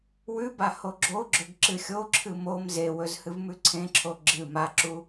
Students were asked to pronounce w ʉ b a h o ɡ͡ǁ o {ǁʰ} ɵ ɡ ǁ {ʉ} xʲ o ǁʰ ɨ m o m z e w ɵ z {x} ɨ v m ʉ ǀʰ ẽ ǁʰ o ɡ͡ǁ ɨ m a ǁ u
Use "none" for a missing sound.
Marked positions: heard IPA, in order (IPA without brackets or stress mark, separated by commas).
ɡ͡ǁ, ɨ, h